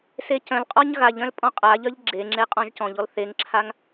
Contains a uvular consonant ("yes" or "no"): yes